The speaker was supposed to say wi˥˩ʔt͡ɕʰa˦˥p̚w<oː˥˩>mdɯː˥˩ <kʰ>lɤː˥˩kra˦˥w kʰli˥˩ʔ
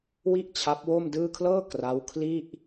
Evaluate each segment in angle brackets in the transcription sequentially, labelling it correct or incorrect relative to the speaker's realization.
incorrect: o˥˩, correct

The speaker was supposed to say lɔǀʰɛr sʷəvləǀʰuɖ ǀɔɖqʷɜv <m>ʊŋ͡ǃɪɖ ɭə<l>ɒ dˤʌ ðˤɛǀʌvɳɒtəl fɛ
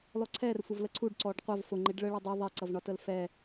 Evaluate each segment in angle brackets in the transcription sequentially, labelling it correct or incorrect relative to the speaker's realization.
incorrect: f, incorrect: ɭ

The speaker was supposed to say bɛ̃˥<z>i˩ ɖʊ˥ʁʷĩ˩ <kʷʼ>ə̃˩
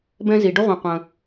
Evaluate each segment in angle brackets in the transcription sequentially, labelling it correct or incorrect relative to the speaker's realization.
correct, incorrect: qʷ

